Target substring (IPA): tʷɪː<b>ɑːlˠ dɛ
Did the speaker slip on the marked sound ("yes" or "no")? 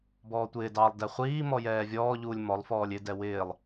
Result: yes